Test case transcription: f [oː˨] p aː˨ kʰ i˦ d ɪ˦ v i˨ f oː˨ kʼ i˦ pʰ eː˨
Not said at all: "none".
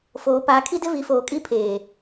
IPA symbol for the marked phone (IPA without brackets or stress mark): oː˨